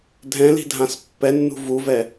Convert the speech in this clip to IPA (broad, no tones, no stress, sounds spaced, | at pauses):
dʱ ɛ̃ l i̤ dʱ ã s pː ɛ nː ṳ v u v ɛ